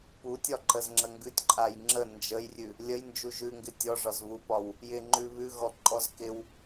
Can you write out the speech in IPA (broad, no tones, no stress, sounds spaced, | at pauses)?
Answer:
p u tʲ ɒ ǃ ə z ŋ͡ǁ ə ŋ ɡ ʉ tʲ ǃʼ a j ŋ͡ǁ ə n d͡ʒ ə j rʲ ʉ | lʲ ə j n d͡ʒ u ʒ ʉ ŋ ɡ ɪ tʲ ɔ ʐ ɒ z β u p ɒ w | j ɪ ŋ͡ǃ ʉ β ʉ ɣ ɔ ǃʼ ɔ z k ɪ w